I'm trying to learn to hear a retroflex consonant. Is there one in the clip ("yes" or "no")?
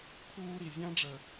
yes